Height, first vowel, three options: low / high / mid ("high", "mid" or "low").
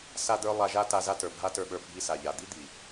low